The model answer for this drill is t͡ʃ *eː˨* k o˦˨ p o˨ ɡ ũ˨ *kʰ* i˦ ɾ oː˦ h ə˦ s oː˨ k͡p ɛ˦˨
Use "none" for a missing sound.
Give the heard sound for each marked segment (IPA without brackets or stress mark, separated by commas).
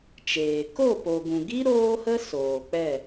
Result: eː˨, ɡ